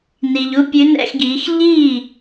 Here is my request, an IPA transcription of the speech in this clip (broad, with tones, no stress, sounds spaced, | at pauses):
n iː˨ ʎ u˧˥˧ pʲ ʉ˧˥ n ɛ̰˧˥˧ x ɡ iː˩˥ x ʎ iː˥˩